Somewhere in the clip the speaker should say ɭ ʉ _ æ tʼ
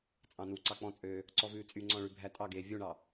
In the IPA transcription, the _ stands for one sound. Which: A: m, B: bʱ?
B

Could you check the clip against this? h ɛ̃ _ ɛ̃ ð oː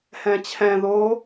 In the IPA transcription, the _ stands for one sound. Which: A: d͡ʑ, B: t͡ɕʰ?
B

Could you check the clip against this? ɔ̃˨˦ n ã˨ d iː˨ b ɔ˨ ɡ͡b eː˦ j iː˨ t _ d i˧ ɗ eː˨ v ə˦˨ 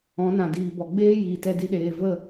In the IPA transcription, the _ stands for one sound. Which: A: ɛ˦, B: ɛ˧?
B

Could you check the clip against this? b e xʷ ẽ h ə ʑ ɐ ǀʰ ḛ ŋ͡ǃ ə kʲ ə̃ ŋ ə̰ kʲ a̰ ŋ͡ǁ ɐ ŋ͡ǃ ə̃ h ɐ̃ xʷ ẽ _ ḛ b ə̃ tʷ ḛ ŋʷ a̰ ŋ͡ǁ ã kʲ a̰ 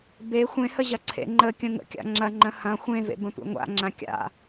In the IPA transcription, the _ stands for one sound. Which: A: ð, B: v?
B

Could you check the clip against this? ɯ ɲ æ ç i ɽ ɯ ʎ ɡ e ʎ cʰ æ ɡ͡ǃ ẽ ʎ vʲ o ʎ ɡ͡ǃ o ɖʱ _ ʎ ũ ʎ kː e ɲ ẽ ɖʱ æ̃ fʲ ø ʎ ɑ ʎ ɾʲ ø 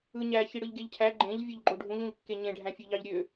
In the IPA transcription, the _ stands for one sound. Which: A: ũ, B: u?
A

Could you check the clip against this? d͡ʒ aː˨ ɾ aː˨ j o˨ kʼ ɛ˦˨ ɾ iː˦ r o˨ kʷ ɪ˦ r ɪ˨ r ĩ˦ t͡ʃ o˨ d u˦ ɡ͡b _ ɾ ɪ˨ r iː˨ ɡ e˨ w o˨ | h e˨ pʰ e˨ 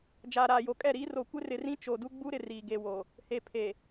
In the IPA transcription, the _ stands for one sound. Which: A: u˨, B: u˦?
B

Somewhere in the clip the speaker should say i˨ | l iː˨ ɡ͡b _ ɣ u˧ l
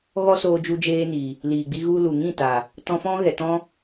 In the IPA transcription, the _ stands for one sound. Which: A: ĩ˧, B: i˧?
B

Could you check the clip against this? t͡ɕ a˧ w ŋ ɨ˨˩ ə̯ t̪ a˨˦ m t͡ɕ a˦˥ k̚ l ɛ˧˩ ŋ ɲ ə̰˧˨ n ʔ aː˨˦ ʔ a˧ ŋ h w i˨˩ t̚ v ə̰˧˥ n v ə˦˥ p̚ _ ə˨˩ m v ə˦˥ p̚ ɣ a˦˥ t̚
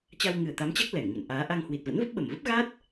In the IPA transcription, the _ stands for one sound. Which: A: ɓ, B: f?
A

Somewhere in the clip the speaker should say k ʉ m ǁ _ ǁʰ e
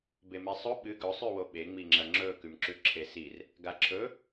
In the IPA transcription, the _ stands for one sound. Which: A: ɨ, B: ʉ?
B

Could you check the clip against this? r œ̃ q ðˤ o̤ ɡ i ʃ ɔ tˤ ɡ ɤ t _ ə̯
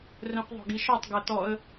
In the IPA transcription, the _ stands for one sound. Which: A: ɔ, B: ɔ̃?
A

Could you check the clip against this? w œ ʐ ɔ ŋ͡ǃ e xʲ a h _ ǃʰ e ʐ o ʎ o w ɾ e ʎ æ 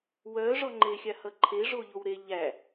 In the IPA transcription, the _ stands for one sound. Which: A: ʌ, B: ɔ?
A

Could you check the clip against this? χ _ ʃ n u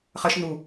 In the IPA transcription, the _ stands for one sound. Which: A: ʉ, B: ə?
B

